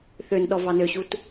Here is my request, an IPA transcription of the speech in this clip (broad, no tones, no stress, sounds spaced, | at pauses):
θ ø n ɗ ɔ v ɑ n ø ɕ u t